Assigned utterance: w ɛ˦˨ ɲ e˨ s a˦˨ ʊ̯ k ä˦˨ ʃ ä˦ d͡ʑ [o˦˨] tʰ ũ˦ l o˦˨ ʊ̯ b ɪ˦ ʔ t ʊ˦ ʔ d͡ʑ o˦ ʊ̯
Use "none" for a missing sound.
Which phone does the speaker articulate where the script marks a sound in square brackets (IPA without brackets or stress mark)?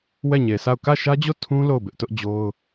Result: o˦˨